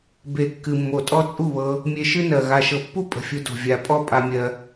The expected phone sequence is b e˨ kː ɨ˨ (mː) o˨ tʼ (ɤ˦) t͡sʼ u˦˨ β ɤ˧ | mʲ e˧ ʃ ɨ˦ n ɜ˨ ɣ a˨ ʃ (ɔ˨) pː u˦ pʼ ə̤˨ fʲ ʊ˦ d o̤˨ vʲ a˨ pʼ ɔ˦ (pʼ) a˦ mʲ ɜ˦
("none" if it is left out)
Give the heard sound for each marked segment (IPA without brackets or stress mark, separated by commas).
mː, ɔ˦, ɤ˨, pʼ